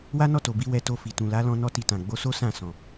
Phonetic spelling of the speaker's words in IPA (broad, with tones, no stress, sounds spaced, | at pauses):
w a˦ n ɔ˦˨ t o˨ b i˧ w ɛ˧ t o˧ f i˨ t ũ˨ l a˨˦ l ɔ̃˧ n ɔ˦ t i˧ t ã˨ ɡ͡b o˨˦ s o˦ s ã˦˨ s ɔ̃˨